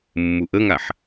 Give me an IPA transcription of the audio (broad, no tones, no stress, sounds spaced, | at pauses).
mː u ʔ ə ŋ a ħ